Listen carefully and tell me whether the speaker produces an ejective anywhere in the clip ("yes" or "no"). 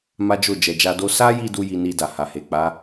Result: no